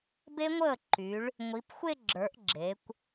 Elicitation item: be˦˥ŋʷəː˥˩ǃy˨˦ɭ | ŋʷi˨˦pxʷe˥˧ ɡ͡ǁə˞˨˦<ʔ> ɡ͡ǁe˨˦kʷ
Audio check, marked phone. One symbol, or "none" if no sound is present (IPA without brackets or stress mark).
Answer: ʔ